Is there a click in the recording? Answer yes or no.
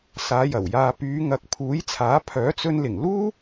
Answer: no